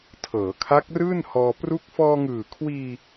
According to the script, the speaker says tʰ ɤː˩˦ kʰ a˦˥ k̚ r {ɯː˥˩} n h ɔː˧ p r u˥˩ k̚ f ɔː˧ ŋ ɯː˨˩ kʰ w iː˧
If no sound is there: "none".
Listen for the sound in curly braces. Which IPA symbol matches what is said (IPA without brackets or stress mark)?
ɯː˥˩